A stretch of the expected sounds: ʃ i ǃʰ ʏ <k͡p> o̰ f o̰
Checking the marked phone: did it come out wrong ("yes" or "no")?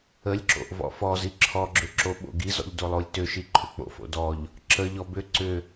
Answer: no